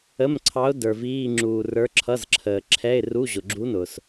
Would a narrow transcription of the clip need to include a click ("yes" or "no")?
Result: yes